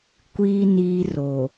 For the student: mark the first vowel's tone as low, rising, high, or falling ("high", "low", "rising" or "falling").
low